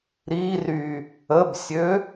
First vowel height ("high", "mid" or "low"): high